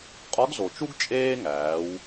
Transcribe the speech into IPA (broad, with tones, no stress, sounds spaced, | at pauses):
qʼ ɒ˧˥ ɡ z o˩ t͡ʃ u˥ ɡ t͡ʃʼ eː˥ ŋ æː˩˧ w